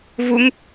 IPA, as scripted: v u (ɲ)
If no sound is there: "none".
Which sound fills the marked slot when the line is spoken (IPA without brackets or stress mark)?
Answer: ŋ